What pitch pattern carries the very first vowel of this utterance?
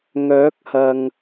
rising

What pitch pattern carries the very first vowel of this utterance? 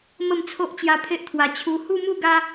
falling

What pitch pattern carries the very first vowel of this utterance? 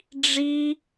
high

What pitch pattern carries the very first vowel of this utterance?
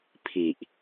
low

